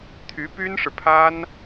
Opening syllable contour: rising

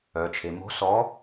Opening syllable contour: low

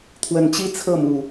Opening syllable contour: rising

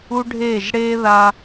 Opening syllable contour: high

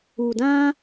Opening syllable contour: low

